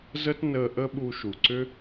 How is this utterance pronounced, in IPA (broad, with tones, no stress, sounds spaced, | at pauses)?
z ə˥ t n əː˧ ʔ ə˥ ɓ u˧ ʃ u˩ ǀ ʏ˥